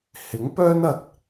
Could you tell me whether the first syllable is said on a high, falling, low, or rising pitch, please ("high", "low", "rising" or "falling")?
rising